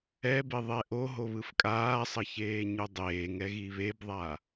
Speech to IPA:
ɛ b e ðˤ ɛ ʔ o ɦ o β ɯ f kʼ aː sˤ ʌ ç eː ɲ u dˤ eː ŋ ɛ ɣ i β e b ðˤ a

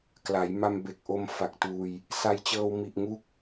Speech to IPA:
k l a˩˦ j m a˧ m b e˨˩ k̚ ʔ o˧ m f a˨˩ k̚ t uː˧ j | s a˧ j t͡ɕ ɤː˧ w m i˨˩ ʔ ŋ u˦˥ k̚

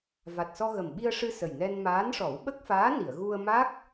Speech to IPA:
v a˨˩ t̚ s ɔ˧ ɣ ə˨˩ m ɓ i˧ ə̯ ʂ ɨ˧ s ə˨˩ j n ɛ˧ n m aː˧˥ n ʂ ɔ˨˩˦ w ɓ ə˦˥ k̚ f aː˧˥ n i˨˩˨ ə̯ ɣ u˧ ə̯ m a˦˥ k̚

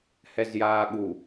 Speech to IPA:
h ɛ z j aː ɠ u

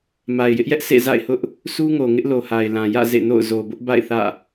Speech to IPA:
m a˨ ɪ̯ j ɪ˦ ʔ j ɛ˦ ʔ sʰ ḛ˦˨ z a̰˦˨ ɪ̯ h ʊ˦ ʔ | sʰ u˦ ŋ o˨ ŋ ɪ˦ ʔ l o˨ h a˨ ɪ̯ l ã˨ j ä̰˦˨ z ḛ˦˨ n o̰˦˨ ʊ̯ z o˨ b ʊ˦ ʔ b a̰˦˨ ɪ̯ θ ä̰˦˨

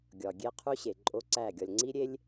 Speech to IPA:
ɡʲ ɒ˨ ɡʲ e˦ qʰ u˦ ɕ e˨ ǃʼ o˦ ǀ æ˦˨ ɡʲ ɒ˨ lʲ ŋ͡ǀ i˦ ɾʲ e˦ lʲ

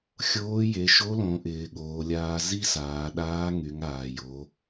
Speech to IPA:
xʲ oː˧˥ j e˩˧ ʃ o˧˥ l õ˩˧ ʔ ɪː˩˧ ɠ oː˩˧ lʲ aː˧ z i˥ s aː˩˧ ɗ aː˧˥ ŋ y˩˧ ŋ aː˩ j o˩˧

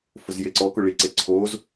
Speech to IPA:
f ʊ z j e ǀ ɔ k ʊ ɭ i ǀ e ǀʰ o z

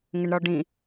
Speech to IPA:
ŋ ɘ ɳ ɾ ɔ ɖ ĩ

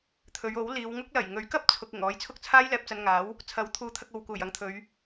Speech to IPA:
t̪ʰ ɵ˨˧ ɥ o˨˥ w l iː˨˧ w ŋ ʊ˥ k̚ l ɐ˨˩ j ŋ ɵ˨˥ ɥ k ɐ˥ p̚ t͡sʰ ʊ˧ k̚ ɪ˨˩ ŋ ɔː˨˥ j t͡sʰ ʊ˥ k̚ t͡sʰ aː˥ j l ɛː˧ p̚ t͡s ɐ˧ n ŋ aː˨˥ w | t͡sʰ ɐ˨˥ w t̪ʰ uː˨˥ t̪ʰ ɐ˧ k̚ o˨ w k uː˨˩ j ɐ˨˧ ŋ t̪ʰ ɵ˨˧ ɥ

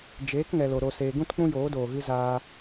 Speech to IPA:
d͡ʒ eː˨˦ k ŋ ɛ˨ l o˨ ɾ o˨ s eː˨ ɡ ũ˦ t k͡p ũ˦ j oː˨˦ d oː˨ ɣ ɨ˦ z aː˧

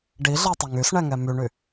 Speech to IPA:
ɖ i ɮ ɛ tˤ ɵ ŋ y s ɳ ɛ ŋ ɛ m y ɳ y

